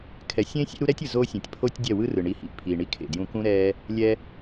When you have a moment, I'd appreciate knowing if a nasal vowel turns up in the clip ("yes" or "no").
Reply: yes